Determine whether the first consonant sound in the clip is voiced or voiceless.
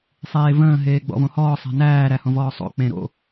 voiceless